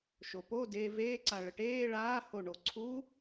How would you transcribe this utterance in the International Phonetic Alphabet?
ʃ o p o d e v eː ǀ a ɭ ə ʈ eː ɭ aː h o ɳ o ǀʰ u

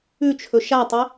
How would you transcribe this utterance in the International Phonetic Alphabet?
ʉ t͡ʃʰ ɵ ʃ a tˤ i

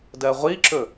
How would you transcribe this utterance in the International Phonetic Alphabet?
d ɜ ʁʷ i ǁ ɵ

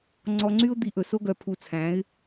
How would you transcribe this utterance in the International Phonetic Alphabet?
ŋ͡ǀ ɔ˧ ŋ͡ǀ y˦ ʊ̯ d̪ i˧ ʔ ɵ˨ s o˦ ɡ œ˧ pʰ u˧ t͡sʰ æ̃˨˦ ɪ̯

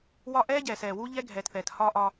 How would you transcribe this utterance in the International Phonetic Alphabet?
w ɒ˦ ʔ ɛː˦ ɟ ɛː˨ s ɛː˨ w u˦ ʎ ɛ˦ ɡʱ ɛː˨ t θ ɛː˨ t h ɒ˦ ʔ ɒ˦

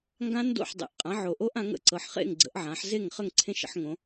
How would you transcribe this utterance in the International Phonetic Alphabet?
ŋ ɡ ã˦˥ n d o̰˥˩ ħ dˤ ḛ˨˩ ʔ qʼ ã˩˥ ʕ o˨˩ ʔ o˦˥ ʔ ã˩˥ ŋ ə̰˨˩ ǀ ɤ˩˧ ħ χ ḛ˥˩ ŋ ɡ͡ǀ ə̰˩˥ ʔ ʕ ã˩˥ ħ z e˥˩ ŋ χ ə˥˩ ŋ ǀʰ ẽ˦˥ ʃ ə̰˩˥ ħ ŋ õ˩˧

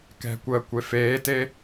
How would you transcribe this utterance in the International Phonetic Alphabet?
k ɛ̤ kʷ əː kʷ e f eː t e

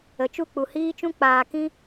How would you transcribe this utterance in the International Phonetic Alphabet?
ə˨ t͡ʃ u˦˨ k͡p u˨ h iː˦ t͡ʃ ũ˦ k͡p aː˨ k ĩ˧

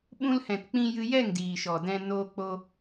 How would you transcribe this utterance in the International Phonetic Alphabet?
ɓ ũ˧ l h ɛ̃˨ t k͡p ĩ˧ j ɨ˧ j ɛ˦˨ ŋ d iː˨ ʃ ɔ˨ d ɛ̃˧ n oː˧ k͡p o˧

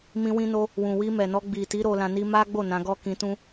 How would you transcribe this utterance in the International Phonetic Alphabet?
m ĩ˧ w ĩ˧ n o˧ | w ũ˨ w i˧ m ɛ˨ n ɔ˧ ɡ͡b i˨ t i˨˦ ɾ o˧ l ã˧ n i˦ m a˦ ɡ͡b o˦˨ n ã˨˦ ɡ ɔ˦ k ĩ˧ t ũ˦

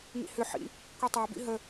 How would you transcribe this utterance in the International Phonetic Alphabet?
ŋ ḭ h ʏ ħ ḭ | kʷ i tˤ ɛ b ḭ ɦ ə

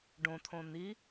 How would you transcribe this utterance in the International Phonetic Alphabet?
ɖ õ t̪ʰ õ n̪ i

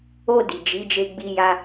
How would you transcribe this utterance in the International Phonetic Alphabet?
o˧ d i˨ d͡ʒ i˨˦ d͡ʒ e˧ ɡ͡b i˧ j a˧

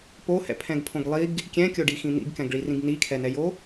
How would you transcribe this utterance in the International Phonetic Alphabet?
p o h ɛ̰ pʰ ɛ̃ ɡ pʰ õ ɡ lˠ i ɡ | kʲ ɛ̃ kʲ o ɖ i x ĩ n̪ ḭ ɡ k ɛ̃ ɡ ɭ i r ĩ ɡ n i kʰ ɛ n ɛ j o

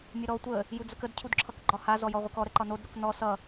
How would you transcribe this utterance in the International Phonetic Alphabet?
mʲ ə ɾ ɔ tʷ ə | j u d͡z ə k ə d cʰ u d ǁʰ ʌ k ɡ͡ǃ ɒ h a z ɔ j ɔ ʁʷ ə k ɔ ɾ ə ǃ ɒ n o d ɾ u k n ɔ s ʌ

